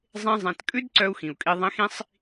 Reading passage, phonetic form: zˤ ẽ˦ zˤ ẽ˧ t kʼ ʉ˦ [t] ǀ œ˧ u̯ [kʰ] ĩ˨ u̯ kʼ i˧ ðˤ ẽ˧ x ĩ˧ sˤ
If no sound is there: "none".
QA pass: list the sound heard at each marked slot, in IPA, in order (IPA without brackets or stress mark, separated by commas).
d, x